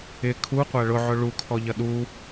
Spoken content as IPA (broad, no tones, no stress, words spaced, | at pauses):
ɪ kʰuqʷæ ɭʊʕʊ ɭukʰɔʎʌ ɗu